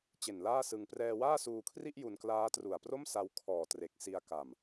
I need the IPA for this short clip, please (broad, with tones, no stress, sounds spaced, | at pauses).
t͡ɕ e˨˩ n l aː˥˩ s ɯ˧ ŋ p r ɛː˧ w aː˥˩ s uː˧ kʰ r i˥˩ ʔ j u˧ n k l aː˦˥ t r u˨˩ a̯ p r o˥˩ m s a˧ w kʰ ɔː˨˩ t r e˨˩ k̚ s i˧ a̯ k a˨˩ m